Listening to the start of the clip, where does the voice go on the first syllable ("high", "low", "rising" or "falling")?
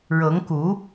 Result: rising